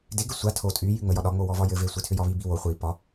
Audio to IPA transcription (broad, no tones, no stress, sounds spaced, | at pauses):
d e ɡ ɘ sʷ a tʰ o tʼ y j y ŋ͡m ə j ɒ ɗ ɒ ŋ͡m o w ɔ v ɒ j ɘ v e sʷ e tʰ ʏ j ɒ β i b i w o χʷ i p ɒ